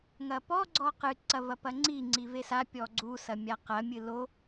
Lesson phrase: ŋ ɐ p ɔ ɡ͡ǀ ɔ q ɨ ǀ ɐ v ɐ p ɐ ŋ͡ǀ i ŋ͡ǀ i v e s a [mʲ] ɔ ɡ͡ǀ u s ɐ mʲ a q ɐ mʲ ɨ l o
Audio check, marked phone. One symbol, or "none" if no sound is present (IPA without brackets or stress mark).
pʲ